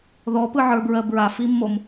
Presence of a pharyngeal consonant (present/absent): present